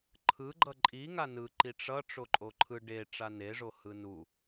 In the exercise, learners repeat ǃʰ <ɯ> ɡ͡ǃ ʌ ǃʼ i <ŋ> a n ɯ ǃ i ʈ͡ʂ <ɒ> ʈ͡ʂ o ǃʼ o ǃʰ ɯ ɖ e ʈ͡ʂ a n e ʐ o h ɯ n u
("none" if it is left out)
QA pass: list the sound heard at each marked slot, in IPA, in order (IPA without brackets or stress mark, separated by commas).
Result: ɯ, ŋ, ʌ